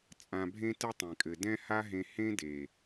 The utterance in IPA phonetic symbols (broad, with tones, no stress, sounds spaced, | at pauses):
t͡sʼ ã˧ bʱ ẽ˦ t ɘ˦ tˤ ẽ˨ kʼ ɘ˨ d ɛ̃˦ h a˦ ɦ ẽ˧ h ẽ˦ d e˨